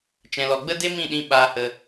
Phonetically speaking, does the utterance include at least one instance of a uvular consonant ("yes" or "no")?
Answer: no